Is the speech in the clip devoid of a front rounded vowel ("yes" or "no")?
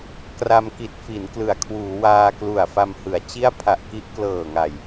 yes